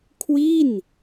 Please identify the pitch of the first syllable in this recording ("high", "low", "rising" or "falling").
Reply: falling